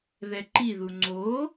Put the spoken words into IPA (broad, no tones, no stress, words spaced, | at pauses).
ðɛǃi ðuŋ͡ǀoː